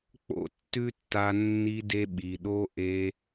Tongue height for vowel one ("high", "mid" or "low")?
mid